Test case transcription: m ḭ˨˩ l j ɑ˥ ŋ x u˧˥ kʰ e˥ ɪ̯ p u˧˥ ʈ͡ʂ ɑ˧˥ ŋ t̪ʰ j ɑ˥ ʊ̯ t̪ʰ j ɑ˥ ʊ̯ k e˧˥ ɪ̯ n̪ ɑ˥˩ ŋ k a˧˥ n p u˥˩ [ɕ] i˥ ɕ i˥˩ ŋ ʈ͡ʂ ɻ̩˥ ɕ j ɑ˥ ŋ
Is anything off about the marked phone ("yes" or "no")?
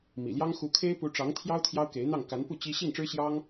yes